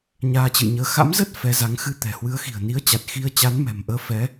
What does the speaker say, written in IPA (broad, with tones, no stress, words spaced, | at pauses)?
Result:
ɲaː˧t͡ɕɨ̰˧˨jɲəː˧ xa̰˧˥mzə˦˥t̚ fɛ˨˦za˨˦ŋ xɨ˧t̪ɛ̤˨˩hwɨ˨˦ə̯xi̤˨˩ə̯ ni˨˦ə̯t͡ɕa˨˩t̚ xi˧ə̯ t͡ɕa˨˦nmɛ̤˨˩mʔəː˨˦ fɛ˨˦